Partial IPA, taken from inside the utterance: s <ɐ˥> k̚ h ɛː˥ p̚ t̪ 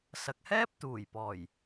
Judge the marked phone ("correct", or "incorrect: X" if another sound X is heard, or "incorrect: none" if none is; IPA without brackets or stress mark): incorrect: ɐ˨